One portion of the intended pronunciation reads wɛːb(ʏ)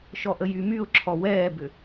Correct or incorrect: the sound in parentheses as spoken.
correct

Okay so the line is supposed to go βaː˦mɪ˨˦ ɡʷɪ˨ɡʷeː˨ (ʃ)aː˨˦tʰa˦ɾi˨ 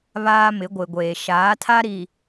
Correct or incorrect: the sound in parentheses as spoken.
correct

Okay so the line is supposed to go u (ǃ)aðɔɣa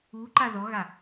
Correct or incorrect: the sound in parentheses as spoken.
correct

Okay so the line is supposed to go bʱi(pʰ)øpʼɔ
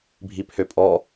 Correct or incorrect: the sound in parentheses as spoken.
correct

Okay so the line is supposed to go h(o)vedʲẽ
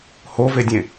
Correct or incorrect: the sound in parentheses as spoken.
correct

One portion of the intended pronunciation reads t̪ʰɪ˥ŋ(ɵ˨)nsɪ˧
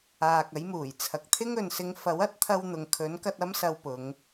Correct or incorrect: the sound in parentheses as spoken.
correct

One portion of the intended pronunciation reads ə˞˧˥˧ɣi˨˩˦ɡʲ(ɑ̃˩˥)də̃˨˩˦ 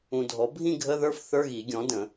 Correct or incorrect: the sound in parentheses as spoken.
incorrect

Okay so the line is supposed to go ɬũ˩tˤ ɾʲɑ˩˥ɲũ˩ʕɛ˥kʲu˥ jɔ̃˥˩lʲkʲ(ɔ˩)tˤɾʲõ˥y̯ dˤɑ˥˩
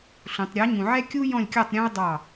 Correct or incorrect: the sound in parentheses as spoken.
incorrect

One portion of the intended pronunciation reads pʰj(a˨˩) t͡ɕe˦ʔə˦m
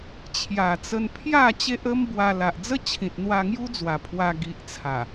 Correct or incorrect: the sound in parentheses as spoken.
incorrect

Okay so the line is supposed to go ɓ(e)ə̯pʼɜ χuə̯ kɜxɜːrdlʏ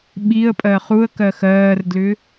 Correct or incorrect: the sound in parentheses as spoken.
incorrect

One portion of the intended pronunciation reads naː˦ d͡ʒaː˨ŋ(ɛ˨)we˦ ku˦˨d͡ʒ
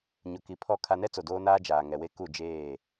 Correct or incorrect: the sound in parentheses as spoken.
correct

